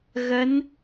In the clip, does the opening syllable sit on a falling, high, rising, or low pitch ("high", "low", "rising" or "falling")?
rising